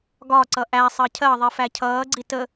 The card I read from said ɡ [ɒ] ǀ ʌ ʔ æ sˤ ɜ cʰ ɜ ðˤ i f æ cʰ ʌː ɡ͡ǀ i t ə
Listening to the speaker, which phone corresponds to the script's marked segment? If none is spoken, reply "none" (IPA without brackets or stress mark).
ɒ